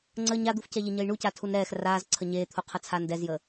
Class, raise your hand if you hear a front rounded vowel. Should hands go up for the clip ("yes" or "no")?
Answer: no